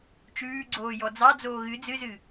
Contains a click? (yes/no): yes